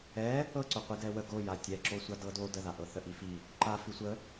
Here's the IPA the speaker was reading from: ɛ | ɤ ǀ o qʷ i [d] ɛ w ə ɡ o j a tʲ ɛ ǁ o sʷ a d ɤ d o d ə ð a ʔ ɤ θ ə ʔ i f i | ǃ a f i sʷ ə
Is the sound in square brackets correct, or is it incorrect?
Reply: correct